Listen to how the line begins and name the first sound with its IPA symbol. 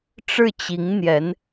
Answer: ʈ͡ʂ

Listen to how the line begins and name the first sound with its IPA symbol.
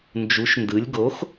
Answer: n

